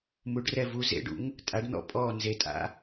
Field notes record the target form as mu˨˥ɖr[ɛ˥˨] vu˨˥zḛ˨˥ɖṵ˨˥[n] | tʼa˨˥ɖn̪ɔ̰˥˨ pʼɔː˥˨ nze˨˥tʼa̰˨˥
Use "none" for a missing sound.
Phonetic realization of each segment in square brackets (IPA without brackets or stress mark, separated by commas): ɛ˥˨, ŋ